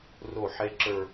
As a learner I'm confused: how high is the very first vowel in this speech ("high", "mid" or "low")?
mid